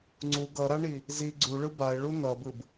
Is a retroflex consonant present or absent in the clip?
present